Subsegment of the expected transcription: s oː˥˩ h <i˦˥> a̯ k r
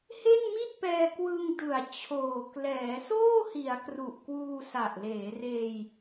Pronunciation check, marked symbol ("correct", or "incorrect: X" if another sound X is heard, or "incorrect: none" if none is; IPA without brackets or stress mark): incorrect: i˩˦